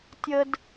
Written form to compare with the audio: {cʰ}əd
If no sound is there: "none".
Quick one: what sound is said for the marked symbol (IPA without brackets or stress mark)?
tʲ